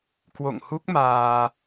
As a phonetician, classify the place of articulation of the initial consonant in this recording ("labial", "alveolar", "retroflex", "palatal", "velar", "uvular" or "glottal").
velar